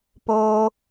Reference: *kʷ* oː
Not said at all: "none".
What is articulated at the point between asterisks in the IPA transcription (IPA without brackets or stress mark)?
p